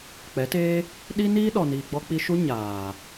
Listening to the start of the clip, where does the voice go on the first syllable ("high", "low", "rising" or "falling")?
rising